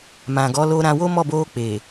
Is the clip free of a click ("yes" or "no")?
yes